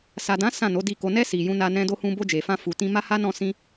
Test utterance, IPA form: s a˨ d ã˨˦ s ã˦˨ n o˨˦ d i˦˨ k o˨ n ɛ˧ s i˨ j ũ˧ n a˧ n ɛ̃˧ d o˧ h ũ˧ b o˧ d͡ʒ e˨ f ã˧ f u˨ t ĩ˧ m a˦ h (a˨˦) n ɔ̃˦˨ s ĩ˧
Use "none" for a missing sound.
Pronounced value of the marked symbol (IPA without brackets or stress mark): a˦